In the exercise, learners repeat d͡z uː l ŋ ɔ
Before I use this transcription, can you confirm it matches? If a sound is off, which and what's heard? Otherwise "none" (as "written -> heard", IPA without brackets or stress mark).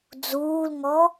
none